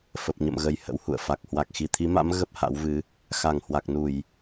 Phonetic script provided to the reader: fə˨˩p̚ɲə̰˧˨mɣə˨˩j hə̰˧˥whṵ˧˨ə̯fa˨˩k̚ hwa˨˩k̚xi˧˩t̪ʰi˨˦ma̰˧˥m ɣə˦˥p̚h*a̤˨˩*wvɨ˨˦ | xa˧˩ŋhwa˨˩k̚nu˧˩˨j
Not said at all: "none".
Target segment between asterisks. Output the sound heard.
a̰˧˥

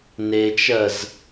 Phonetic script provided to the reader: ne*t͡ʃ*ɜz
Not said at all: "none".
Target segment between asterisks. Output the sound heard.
t͡ʃ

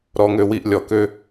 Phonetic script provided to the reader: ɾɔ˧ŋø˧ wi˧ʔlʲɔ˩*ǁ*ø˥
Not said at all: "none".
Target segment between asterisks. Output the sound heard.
k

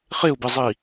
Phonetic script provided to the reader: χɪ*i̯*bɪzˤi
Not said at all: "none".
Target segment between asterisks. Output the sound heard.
u̯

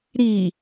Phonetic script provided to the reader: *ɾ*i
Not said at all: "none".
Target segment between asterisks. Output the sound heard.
ɾ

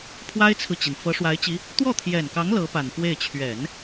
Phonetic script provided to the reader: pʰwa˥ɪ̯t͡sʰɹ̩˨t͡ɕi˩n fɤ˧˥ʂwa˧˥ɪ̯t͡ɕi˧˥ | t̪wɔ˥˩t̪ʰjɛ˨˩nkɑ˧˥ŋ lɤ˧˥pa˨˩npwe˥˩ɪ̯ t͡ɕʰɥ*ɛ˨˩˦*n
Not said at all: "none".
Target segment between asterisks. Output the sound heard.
ɛ˨˩˦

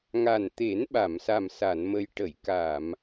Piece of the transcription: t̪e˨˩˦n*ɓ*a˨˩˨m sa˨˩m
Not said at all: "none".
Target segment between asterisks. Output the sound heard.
ɓ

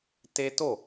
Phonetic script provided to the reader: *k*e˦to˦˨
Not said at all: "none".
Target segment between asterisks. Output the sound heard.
t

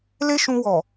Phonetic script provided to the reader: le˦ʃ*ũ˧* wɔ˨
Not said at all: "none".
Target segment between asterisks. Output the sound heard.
ũ˧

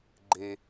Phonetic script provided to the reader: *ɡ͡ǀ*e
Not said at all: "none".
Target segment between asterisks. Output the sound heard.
ɡ͡ǃ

